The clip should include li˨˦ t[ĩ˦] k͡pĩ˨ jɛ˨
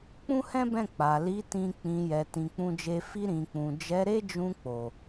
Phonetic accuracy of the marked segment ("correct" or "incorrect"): incorrect